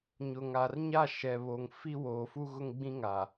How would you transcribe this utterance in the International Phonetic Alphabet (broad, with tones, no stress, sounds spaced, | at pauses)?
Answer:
ɲ ʊ˨ ŋ a˨ r ɲ a˦˨ ʃ ɛ˨ β o˨ ŋ f i˦ w oː˨ f u˦ ɣ ʊ˦ ŋ ɡ͡b ĩ˦ ŋ a˨